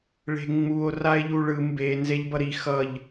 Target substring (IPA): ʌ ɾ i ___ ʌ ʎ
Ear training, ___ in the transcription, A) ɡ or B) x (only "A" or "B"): B